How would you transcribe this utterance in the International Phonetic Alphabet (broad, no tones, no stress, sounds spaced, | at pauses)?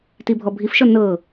t i bʱ ɔ bʱ i f ʃ ɔ n ɤ